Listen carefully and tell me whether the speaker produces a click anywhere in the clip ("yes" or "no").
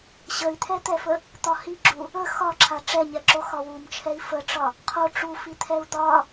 yes